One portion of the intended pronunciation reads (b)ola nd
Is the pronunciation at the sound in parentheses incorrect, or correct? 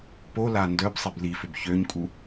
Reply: incorrect